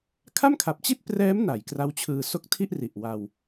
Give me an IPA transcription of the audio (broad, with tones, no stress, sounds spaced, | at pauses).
kʰ a˥˩ m kʰ a˨˩ p̚ t͡ɕ i˥˩ t̚ p r ɛː˦˥ m n a˩˦ j k r a˦˥ w t͡ɕʰ ɯː˧ s o˦˥ k̚ tʰ i˥˩ ʔ r i˨˩ ʔ w a˧ w